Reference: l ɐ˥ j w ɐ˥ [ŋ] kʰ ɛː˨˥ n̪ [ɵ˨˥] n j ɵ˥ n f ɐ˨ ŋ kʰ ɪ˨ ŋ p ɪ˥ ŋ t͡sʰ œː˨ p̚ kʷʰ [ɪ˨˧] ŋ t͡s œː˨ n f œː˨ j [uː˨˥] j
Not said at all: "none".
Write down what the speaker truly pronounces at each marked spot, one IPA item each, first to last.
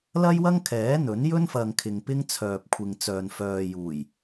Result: ŋ, ɵ˨˥, ɪ˨, uː˨˩

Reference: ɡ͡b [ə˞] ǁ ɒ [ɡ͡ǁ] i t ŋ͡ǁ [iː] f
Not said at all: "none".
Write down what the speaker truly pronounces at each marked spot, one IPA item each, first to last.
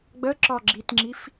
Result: ə, ɡ͡ǁ, i

